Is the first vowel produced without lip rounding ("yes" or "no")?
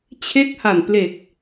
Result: yes